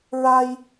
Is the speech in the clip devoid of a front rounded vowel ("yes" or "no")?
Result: yes